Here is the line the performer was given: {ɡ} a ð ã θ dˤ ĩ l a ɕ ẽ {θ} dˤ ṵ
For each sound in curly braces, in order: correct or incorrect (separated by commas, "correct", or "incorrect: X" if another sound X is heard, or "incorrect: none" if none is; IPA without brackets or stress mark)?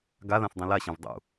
correct, incorrect: v